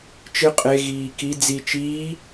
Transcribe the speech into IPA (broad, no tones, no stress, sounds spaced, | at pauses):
t͡ʃ ɨ qʼ e ɣ iː k i d͡z i t͡ʃ iː